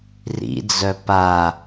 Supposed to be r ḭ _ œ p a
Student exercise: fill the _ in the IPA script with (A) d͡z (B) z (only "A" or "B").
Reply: A